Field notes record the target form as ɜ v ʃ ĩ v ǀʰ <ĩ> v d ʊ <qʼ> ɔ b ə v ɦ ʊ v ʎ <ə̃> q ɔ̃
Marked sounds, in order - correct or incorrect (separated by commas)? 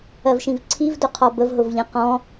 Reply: incorrect, incorrect, correct